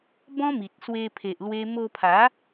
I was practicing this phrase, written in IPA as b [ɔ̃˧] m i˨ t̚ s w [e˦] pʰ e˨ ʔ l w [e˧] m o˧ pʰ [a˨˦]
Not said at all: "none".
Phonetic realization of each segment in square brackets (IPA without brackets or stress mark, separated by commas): ɔ̃˦, e˧, e˧, a˨˦